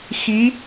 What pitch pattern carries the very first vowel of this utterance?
rising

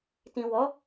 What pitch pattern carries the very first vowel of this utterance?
low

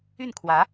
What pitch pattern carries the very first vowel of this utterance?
falling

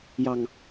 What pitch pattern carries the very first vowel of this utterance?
low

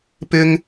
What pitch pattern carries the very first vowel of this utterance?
high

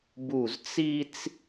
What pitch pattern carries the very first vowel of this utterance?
falling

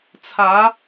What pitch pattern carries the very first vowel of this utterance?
rising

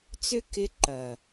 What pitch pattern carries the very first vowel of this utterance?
high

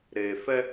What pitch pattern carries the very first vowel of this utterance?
low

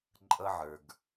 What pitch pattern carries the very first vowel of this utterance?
high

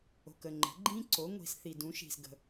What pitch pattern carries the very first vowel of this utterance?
low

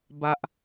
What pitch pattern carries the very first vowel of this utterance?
high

